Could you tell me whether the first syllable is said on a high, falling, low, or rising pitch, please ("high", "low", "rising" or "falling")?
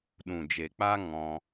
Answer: low